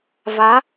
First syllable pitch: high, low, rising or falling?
rising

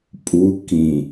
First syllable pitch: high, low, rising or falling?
rising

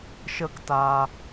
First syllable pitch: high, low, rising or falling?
high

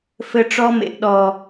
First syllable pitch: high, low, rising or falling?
high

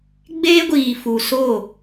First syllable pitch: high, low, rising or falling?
high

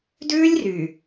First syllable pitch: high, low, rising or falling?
high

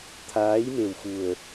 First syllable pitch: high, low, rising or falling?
rising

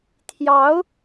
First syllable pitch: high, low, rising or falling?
rising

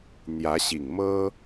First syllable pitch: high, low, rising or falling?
rising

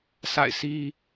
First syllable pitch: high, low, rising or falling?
falling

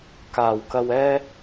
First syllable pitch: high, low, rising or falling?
low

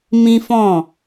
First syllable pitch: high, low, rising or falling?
high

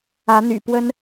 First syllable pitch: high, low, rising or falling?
rising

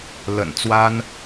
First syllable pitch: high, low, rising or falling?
low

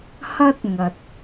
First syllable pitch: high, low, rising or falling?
high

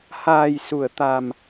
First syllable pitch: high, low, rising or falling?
low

